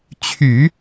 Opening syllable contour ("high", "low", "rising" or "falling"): low